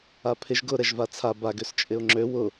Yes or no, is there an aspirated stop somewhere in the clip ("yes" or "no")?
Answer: yes